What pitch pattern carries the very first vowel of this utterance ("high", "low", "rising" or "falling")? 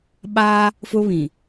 high